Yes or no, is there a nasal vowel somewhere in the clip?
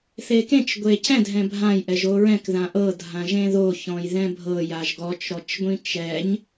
yes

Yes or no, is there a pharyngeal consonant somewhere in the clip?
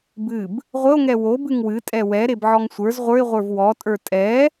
yes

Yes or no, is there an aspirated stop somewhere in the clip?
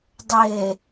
no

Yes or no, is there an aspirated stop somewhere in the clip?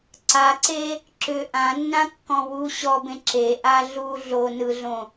no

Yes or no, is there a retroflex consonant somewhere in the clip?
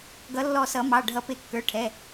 yes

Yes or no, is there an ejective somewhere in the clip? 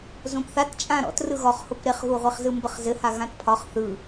yes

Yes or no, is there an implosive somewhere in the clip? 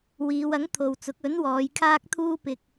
no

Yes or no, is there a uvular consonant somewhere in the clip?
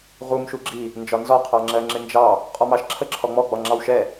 yes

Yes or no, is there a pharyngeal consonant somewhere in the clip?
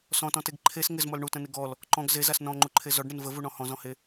no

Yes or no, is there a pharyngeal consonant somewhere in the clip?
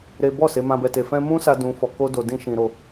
no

